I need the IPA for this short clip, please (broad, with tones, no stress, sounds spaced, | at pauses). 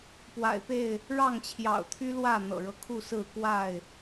p w a̰˨˩ ɪ̯ p e˥˨ ɪ̯ | ɻ ɑ˥˨ ŋ t͡ɕʰ j ɑ̰˨˩ ʊ̯ t̪ʰ y˦ l w ä˥˨ n̪ ɤ̰˨˩ ɻ ɤ˦ kʰ u˥˨ s ɹ̩˥˨ k w a˥˨ ɪ̯